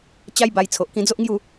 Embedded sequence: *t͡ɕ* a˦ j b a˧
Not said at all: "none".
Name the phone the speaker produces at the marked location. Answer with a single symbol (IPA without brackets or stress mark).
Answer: t͡ɕ